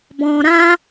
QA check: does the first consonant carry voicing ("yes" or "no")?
yes